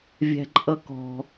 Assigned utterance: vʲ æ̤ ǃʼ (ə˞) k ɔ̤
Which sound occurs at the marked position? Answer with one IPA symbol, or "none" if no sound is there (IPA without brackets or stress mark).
ʌ